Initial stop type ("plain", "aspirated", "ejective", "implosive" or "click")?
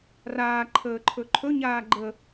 click